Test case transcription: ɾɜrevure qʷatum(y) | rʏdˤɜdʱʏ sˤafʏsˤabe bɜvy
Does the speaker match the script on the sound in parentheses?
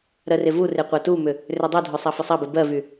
no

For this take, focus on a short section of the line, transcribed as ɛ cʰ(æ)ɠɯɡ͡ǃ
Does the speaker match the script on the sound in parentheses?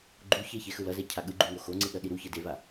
no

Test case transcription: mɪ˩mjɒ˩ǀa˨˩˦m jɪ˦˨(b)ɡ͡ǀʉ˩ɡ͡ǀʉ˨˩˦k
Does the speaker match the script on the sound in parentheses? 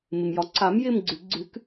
no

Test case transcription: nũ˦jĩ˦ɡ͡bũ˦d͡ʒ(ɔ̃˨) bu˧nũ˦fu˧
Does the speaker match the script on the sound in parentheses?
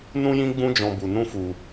no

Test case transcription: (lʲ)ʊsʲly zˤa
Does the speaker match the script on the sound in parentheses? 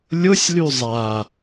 yes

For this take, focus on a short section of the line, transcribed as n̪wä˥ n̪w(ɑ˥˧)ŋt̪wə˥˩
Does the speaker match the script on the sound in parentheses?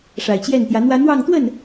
yes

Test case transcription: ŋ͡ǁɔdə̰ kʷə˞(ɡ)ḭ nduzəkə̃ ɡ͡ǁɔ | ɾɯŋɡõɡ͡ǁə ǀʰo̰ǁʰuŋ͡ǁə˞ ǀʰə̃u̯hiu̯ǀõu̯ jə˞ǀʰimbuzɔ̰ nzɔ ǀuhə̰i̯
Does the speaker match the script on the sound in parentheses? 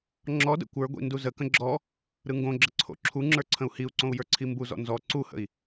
no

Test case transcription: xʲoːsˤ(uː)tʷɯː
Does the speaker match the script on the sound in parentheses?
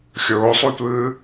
no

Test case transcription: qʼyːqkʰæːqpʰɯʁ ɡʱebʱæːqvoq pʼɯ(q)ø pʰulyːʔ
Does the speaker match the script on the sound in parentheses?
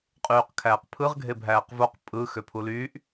no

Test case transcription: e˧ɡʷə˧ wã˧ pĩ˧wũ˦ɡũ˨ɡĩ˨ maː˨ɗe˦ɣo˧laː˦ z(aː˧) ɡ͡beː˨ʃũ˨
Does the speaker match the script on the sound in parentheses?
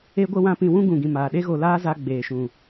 no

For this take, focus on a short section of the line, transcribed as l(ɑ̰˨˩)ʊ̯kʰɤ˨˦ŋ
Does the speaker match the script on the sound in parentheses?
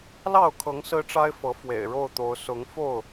no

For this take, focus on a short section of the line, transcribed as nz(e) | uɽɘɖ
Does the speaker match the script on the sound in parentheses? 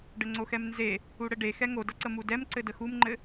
yes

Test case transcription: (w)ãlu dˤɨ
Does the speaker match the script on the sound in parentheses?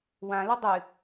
yes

